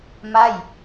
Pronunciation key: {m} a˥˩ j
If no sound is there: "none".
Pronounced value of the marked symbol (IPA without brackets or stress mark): m